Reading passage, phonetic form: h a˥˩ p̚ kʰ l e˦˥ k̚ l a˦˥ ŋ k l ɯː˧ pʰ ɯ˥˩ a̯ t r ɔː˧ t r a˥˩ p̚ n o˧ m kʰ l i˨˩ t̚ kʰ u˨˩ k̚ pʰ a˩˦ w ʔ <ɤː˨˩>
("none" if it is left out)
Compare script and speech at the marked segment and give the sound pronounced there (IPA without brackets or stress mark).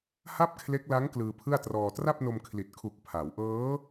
ɤː˦˥